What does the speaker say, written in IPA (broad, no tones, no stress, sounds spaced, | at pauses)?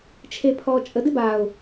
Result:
t͡ʃʰ e pʰ ɔː t͡ʃʼ ə d ɪ b aː ʊ̯